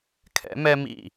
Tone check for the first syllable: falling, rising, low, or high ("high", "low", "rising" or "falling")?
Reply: rising